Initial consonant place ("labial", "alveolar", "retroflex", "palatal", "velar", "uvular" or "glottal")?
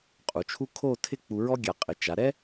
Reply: uvular